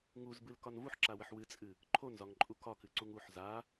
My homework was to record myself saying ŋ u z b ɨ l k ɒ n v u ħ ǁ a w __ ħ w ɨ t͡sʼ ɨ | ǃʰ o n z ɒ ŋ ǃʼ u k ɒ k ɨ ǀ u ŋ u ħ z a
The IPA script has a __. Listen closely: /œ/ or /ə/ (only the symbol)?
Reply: ə